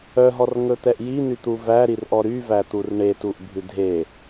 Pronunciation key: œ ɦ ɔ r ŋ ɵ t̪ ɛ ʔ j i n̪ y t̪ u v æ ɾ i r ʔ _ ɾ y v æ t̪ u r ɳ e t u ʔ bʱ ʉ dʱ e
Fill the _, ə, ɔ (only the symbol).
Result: ɔ